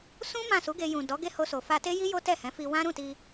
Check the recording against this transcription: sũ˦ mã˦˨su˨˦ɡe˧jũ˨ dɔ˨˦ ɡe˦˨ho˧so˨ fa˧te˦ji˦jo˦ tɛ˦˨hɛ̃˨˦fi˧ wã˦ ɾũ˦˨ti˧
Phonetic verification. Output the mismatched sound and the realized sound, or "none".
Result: none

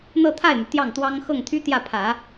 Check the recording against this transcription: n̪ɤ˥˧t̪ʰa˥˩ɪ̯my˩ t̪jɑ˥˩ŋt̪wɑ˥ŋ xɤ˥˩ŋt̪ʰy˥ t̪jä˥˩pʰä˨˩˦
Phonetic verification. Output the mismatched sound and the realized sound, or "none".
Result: none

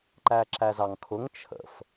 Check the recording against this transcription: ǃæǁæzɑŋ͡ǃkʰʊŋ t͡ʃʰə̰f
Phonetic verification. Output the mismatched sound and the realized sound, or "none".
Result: ŋ͡ǃ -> ŋ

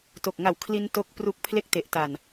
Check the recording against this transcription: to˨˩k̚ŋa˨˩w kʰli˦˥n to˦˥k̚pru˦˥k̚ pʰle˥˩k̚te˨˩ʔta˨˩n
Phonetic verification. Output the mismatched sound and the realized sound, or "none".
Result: none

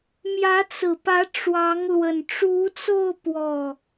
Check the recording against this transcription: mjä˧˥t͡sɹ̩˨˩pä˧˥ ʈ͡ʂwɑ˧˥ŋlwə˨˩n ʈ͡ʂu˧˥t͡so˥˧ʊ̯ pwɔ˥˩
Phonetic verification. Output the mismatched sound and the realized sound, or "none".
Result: none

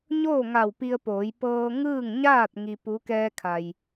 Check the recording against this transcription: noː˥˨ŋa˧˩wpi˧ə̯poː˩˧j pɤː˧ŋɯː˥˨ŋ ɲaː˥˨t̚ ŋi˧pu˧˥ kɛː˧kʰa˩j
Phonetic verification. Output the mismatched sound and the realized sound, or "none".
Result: n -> ɲ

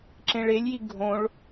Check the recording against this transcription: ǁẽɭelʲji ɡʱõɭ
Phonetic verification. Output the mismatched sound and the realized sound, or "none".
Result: none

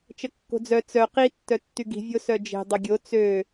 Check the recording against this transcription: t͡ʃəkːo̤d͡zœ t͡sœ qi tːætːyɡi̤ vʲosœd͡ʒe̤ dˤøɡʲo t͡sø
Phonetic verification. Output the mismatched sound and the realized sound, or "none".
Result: æ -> œ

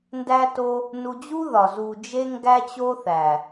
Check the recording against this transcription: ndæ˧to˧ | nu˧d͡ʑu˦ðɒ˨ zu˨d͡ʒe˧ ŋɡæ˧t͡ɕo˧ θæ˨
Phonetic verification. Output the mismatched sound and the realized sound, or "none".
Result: none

